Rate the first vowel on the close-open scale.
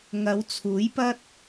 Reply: open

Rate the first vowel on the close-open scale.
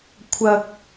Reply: open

